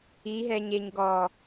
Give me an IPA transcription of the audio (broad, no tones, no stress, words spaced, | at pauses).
iɦɛɲeɲ ɡɔ